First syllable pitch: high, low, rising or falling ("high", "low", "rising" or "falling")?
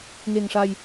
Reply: low